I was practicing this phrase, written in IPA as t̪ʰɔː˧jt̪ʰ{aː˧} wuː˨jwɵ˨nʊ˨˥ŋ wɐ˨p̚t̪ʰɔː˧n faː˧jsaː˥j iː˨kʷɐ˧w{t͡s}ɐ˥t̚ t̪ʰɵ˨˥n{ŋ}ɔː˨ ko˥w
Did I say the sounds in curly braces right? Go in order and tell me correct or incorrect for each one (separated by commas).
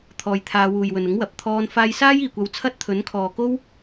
correct, incorrect, incorrect